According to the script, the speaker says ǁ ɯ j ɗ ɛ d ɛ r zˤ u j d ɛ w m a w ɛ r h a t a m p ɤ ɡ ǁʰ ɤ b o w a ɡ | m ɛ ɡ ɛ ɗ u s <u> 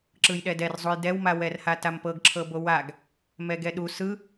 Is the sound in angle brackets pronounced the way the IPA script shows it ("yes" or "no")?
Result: no